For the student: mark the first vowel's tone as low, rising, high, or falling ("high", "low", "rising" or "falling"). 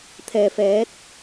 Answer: low